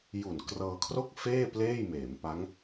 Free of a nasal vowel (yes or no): yes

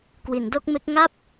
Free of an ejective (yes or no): yes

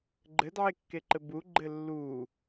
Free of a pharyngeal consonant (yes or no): no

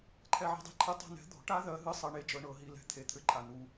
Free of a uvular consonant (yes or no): yes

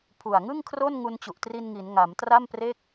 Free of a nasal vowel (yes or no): yes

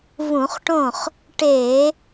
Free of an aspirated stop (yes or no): yes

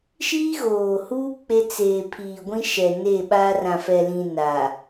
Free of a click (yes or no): yes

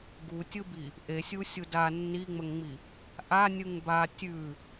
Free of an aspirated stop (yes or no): yes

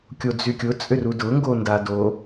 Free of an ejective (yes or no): no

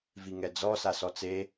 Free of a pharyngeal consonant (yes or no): yes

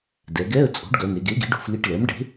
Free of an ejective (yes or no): no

